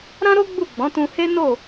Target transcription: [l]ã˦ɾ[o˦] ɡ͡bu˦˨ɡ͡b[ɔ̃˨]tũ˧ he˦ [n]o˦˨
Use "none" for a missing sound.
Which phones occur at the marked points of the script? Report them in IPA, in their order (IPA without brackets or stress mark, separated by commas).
ɾ, o˦, ɔ̃˨˦, n